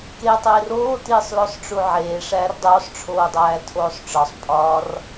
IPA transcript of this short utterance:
ketˤeːr oːtiːsˤ losˤʈ͡ʂuʕeː ʂæːrdˤoːsˤ ʈ͡ʂʰoːdˤæːtʰoːsˤʈ͡ʂɒsˤ pʼɒːr

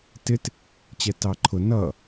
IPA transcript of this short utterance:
tɪt | t͡ɕɛtɑǃʰʊ nʌ

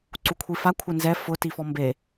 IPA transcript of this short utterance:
ǀukʷʰifa kʷʰɪnzɛ fʊ tifɔmbe

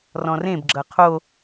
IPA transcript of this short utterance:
rɔ̃rẽbɡ͡ǁʌ qʰo

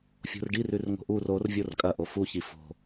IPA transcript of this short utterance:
fʲo̤rɖir ʉrŋo̤ʔur or vʲorkʼɐʔo fuçi fo̤

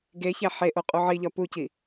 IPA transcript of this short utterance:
ɡeçæ ħeʔo qʼuʕiʎɒ puci

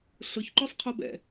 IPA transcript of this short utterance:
ɬʊçǃœsˤqʰob ɛ̰

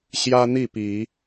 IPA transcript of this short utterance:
ɕjä˦n̪i˥˨pi˨˦

